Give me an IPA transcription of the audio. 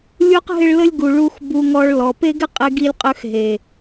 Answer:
lʲu˦qɦɪ˦ɭlə˦lʲ ɡu˨ɭu˧x bu˧ŋɔ˧ɭ lɔ˨ pe˦ɡɪ˦ qʼe˧ɡi˧lʲqʼø˧x ɦe˨

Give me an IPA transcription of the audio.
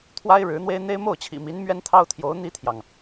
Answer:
t̪ʰwa˥ɪ̯ɻɻ̩˧˥n̪we˥ɪ̯n̪e˥ɪ̯ mo˥˩ʊ̯t͡ɕʰḭ˨˩mi˧˥n mɥɛ˥nt̪ʰɑ˥ʊ̯t̪ʰjo˧˥ʊ̯ n̪i˥t̪ʰjɑ˨ŋ

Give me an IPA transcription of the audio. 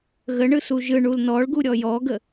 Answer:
ɣəɳɯ suʒɯ ɳulnɔɭɡu ɾʲɔjɔɡə

